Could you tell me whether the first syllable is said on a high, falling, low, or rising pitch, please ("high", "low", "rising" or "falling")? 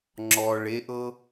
low